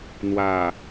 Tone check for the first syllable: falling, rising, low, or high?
low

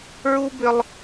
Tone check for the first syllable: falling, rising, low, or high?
high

